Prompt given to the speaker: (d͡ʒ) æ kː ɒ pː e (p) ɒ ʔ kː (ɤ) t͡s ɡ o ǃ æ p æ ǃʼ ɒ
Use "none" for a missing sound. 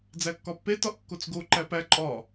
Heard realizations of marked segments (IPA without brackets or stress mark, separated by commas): d͡z, t, o